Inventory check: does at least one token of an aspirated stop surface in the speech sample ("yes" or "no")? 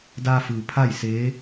yes